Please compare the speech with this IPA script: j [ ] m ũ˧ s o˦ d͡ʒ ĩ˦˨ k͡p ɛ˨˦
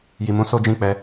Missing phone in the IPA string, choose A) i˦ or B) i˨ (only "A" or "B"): B